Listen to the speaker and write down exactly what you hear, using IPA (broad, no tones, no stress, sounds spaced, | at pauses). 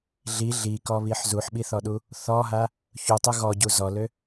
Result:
ɮ i ɮ i k ɔ β i ħ z u ħ ɓ i θ ɔ ɗ u | θ ɔ ɦ a | ç u tˤ u ɣ ɔ ɟ u z ɔ l ø